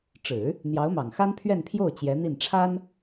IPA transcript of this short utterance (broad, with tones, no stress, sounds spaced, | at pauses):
ʈ͡ʂ ɻ̩˨˩˦ | n̪ j ɑ˧˥ ʊ̯ m ɑ˨˩ ŋ x a˥ n pʰ ɥ ɛ˥˧ n pʰ j o˥˩ ʊ̯ t͡ɕ j ɛ˧˥ n̪ i˥˩ n ʈ͡ʂʰ a˥ n